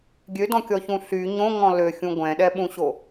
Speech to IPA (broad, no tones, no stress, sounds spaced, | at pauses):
ɡʲ ø d ɔ̃ kʲ ɔ ç ũ ɬ y ɲ õ ŋ ɔ̃ l ø xʲ ũ ɡʷ ɛ̃ ɗ ɛ ɓ ũ ɕ o